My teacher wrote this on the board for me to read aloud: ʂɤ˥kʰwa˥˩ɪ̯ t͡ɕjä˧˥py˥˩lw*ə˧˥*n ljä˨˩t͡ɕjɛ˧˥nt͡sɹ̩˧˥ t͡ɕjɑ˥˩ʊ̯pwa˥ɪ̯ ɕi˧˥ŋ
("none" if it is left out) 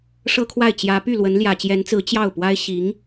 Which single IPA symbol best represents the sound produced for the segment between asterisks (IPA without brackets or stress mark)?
ə˧˥